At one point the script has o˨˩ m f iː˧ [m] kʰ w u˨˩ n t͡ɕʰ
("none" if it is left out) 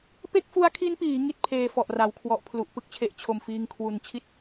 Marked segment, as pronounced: ŋ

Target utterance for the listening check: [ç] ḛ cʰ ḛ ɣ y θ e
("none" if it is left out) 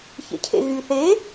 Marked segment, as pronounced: ç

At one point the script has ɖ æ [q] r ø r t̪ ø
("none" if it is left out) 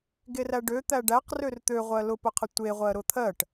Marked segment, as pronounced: q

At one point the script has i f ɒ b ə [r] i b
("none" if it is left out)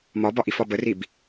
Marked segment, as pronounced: r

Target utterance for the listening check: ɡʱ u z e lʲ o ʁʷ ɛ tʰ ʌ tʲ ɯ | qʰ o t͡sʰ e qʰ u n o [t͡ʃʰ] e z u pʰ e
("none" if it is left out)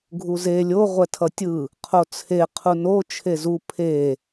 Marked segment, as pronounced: t͡ʃʰ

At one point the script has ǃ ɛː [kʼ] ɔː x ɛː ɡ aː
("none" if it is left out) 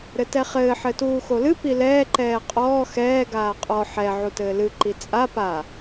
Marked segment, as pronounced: qʼ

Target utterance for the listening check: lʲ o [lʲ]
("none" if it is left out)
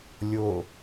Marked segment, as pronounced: none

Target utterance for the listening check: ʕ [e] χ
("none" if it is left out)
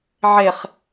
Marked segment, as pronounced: e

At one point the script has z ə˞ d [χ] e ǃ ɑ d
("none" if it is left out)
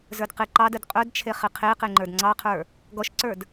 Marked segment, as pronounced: q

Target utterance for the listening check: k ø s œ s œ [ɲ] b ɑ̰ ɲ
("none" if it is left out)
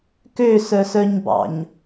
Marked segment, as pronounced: ɲ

